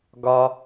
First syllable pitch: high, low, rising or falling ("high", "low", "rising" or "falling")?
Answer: high